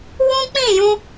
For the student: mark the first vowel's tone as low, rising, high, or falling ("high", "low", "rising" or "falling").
high